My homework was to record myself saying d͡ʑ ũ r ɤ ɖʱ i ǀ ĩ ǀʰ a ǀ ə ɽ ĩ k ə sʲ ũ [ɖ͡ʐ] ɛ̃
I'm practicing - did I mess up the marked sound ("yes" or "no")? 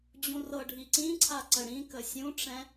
yes